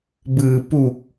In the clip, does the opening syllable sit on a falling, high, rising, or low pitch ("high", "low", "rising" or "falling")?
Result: low